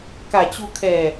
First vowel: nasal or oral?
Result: oral